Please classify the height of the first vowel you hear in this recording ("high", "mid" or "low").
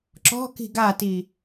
mid